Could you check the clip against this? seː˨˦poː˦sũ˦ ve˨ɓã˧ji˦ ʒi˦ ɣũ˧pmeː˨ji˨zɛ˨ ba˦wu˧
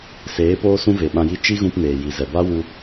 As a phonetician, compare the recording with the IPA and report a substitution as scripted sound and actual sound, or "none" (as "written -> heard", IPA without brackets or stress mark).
ʒ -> t͡ʃ